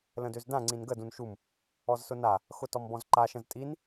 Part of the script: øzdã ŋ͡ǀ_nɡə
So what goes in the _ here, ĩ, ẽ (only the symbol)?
ĩ